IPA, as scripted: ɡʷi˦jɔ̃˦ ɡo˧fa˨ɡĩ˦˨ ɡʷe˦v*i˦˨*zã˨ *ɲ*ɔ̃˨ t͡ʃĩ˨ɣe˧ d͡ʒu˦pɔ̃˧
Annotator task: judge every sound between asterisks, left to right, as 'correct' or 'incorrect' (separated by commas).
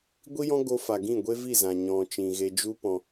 correct, correct